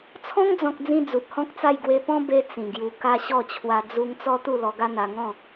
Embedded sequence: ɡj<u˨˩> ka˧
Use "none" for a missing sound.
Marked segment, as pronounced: u˧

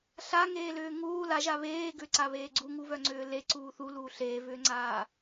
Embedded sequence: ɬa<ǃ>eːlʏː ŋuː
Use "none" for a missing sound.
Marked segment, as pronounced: ŋ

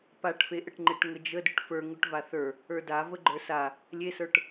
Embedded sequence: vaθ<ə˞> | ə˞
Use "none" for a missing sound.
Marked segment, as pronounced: ə˞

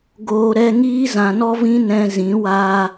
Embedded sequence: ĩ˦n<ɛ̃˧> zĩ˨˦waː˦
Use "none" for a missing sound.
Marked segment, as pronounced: ɛ̃˧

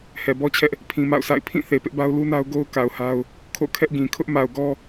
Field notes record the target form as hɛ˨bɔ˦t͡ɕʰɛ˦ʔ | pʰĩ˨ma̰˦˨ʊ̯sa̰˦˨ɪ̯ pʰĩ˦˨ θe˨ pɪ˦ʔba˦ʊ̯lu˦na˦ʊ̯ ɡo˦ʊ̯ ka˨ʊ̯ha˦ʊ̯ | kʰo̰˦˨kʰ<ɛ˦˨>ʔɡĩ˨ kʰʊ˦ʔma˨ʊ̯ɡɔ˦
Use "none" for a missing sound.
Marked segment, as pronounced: ɛ˦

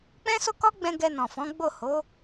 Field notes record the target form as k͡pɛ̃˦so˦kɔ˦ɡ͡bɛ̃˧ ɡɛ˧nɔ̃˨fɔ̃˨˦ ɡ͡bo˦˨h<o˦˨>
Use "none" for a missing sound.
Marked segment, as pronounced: o˨˦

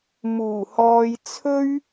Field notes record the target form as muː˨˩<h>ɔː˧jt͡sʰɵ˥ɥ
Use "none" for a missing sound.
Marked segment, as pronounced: h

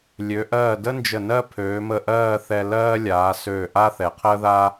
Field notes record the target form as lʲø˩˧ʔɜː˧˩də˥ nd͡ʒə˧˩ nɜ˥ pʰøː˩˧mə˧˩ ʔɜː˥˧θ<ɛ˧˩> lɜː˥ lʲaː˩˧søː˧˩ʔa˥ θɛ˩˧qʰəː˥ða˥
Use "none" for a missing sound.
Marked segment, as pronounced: ɛ˧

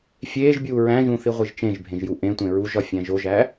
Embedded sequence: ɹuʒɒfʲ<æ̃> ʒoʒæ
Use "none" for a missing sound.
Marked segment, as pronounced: æ̃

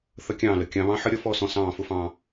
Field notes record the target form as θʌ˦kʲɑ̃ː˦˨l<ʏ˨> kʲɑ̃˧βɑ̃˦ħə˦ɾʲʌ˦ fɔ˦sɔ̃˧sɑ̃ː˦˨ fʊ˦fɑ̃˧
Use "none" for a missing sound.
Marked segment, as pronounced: ə˨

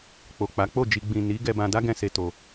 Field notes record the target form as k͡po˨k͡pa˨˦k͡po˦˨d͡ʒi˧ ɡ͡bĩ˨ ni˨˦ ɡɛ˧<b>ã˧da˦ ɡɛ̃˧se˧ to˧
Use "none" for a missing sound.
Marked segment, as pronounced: b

